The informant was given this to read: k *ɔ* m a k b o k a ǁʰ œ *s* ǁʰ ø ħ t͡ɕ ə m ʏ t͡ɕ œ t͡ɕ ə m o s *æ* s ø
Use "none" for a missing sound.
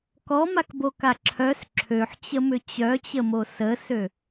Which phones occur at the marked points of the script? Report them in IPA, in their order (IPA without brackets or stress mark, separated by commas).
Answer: ɔ, s, ə